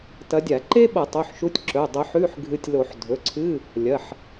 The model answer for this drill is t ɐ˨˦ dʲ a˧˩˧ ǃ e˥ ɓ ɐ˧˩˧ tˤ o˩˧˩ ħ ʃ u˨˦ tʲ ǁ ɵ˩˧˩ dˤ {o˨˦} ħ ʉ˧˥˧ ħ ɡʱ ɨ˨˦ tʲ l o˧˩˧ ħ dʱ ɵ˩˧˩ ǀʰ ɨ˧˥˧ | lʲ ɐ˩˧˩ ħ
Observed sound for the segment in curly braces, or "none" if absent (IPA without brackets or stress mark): o˨˦